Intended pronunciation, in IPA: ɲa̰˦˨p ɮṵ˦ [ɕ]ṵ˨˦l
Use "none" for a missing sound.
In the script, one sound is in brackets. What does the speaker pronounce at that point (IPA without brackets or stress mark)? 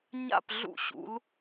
ɕ